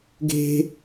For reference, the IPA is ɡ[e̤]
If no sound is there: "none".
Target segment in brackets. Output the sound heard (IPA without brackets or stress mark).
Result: e̤